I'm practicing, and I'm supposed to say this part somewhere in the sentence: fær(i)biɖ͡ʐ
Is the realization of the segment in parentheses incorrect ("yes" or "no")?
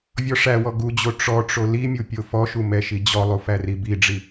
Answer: no